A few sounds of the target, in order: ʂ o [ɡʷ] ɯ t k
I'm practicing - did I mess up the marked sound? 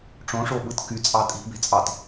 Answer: yes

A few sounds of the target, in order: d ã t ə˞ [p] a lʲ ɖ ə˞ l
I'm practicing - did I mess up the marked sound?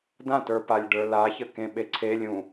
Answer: no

